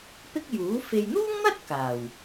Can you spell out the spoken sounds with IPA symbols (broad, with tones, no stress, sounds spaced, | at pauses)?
p ɪ˥ k̚ j uː˨˥ f e˨ j n̪ uː˥ ŋ n̪ ɐ˥ t̚ k aː˨˩ w